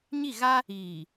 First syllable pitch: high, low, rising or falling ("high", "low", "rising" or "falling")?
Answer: falling